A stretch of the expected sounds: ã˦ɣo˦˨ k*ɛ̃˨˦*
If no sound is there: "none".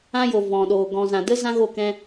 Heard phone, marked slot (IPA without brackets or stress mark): ɛ̃˧